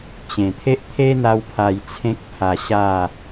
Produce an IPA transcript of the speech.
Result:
t͡ɕ ẽ˨˩ t̪ʰ e˦ ʔ t̪ʰ e˦ n̪ a˧ w pʰ a˨˩ j t͡sʰ ẽ˦ k̚ pʰ a˧ ɕ a˥˧

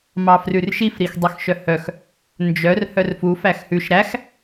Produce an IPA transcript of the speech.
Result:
m ɑ f r ʉ r ʃ i f ɾ i x dˤ ø x ʃ œ h œ x | n d͡ʒ œ r h œ r f u f æ x h ʉ ʃ ɾ æ x

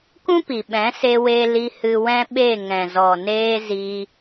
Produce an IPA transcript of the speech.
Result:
k ũ˦ p i˨ ɓ ɛ̃˨˦ s e˧ w e˧ l i˧ h ɨ˧ w ɛ̃˦ ɓ e˦˨ ŋ ɛ̃˨ z ɔ˨ n eː˧ z i˧

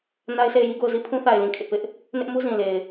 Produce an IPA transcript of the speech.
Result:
n a˦ ɪ̯ sʰ e˦˨ ɪ̯ j i˦ ɡ o˦˨ ʊ̯ z i˦˨ pʰ ũ˦ θ a˨ ɪ̯ l ĩ˨ kʰ ɪ˦ ʔ p ɪ˦ ʔ | n ɪ˦ ʔ m u˦ z ĩ˨ l e˨ ɪ̯

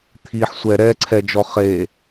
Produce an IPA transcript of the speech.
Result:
t̪ʰ i ħ sʷ ɛ ɾ ɛ ǀʰ ɛ d͡ʒ ɔ χ e

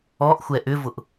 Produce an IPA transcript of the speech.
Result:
ɔ ʔ xʷ ɛ ʔ ʏ v ʊ ʔ

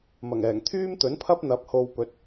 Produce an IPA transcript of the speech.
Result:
m ɐ˨˩ ŋ ɛː˨˩ ŋ t̪ʰ yː˥ m t̪ ɵ˨˥ n pʰ ɐ˥ p̚ n̪ ɐ˨˥ p̚ h o˧ w p ɵ˨˥ t̚

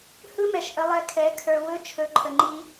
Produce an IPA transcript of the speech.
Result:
h ɯ˦ m ɛ˨ ʃ ʔ ə˧ lˠ ɛ˧ kʰ ɛ˨˦ kʰ ə˞˧ w ɵ˦ t͡ʃʰ ɵ˨˦ ǃʰ ə˨ ŋ͡ǃ i˧

